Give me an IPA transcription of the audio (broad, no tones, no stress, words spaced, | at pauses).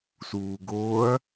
suːɡoːɐ̯